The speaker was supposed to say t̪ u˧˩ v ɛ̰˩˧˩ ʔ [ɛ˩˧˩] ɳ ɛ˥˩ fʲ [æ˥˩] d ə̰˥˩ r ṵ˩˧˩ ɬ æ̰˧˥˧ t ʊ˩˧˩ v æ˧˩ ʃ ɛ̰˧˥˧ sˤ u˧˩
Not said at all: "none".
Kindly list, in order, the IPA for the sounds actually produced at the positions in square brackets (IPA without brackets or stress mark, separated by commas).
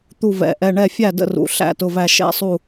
ɛ˩˧˩, æ˥˩